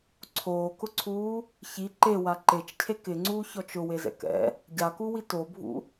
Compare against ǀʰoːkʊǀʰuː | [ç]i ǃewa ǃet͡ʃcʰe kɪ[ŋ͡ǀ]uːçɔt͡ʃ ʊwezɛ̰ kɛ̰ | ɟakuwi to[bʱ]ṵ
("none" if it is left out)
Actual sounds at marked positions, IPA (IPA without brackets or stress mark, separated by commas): ç, ŋ͡ǀ, bʱ